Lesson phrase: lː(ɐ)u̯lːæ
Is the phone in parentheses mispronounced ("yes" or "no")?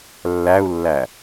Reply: yes